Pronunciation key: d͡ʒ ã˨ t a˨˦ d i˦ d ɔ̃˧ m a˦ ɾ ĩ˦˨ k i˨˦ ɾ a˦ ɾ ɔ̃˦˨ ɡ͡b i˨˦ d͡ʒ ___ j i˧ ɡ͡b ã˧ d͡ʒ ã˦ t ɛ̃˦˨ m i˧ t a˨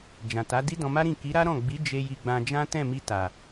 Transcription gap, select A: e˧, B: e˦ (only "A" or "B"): A